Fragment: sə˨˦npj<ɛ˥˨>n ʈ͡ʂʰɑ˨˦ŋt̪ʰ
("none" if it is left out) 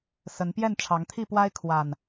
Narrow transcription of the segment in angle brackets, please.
ɛ˥˨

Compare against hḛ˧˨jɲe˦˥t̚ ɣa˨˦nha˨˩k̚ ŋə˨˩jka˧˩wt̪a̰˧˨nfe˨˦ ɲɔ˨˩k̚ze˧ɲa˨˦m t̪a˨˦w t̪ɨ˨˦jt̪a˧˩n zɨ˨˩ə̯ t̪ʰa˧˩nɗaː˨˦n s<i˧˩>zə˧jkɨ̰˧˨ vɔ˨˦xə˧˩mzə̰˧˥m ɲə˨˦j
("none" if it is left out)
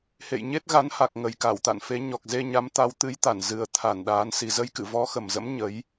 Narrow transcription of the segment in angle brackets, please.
i˨˩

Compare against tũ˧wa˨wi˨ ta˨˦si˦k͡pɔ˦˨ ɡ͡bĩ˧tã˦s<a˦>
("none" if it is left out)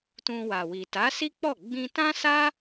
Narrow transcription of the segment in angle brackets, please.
a˦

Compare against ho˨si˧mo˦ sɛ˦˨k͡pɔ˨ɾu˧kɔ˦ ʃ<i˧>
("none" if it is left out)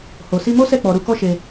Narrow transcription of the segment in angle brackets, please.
e˧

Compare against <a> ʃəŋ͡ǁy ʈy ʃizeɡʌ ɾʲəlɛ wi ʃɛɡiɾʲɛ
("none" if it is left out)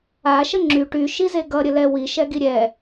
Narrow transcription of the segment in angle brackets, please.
a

